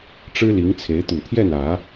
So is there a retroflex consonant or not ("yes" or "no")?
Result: yes